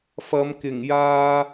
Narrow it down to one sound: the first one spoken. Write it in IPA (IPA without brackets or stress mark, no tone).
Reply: f